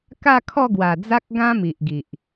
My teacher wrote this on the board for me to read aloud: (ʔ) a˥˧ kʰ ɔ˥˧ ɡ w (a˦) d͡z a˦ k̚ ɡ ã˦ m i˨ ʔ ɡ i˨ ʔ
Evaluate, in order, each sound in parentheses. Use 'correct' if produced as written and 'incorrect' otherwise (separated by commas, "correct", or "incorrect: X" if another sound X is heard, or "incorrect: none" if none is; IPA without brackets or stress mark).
incorrect: k, incorrect: a˨˩